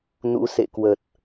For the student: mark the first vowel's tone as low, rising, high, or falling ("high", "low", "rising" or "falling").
rising